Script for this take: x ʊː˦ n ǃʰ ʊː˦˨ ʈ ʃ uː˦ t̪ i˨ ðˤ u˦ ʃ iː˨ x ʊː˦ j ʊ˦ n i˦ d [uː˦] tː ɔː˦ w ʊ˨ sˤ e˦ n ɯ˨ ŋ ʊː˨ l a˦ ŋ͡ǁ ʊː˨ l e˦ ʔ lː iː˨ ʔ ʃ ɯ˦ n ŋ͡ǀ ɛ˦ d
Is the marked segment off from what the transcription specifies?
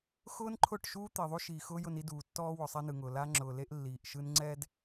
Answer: yes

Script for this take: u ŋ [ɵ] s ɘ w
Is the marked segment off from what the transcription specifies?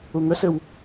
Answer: yes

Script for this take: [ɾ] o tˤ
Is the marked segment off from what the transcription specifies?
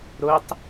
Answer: no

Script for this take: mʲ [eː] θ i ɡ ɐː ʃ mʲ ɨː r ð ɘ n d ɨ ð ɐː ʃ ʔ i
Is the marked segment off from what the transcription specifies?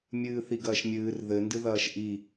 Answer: yes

